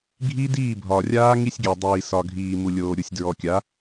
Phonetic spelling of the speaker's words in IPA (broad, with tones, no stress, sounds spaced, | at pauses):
ɡʱ i˦ d iː˦˨ bʱ ɒ˨ rʲ aː˦ ŋ i˦ sʲ ɡʲ ɛ˨ dˤ iː˨ s ɒ˨ ɡʱ iː˨ m u˨ lʲ oː˨ ɾʲ u˨ sʲ d ɹ ɔ˨ kʲ a˨˦